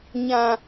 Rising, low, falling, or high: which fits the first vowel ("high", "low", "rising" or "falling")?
low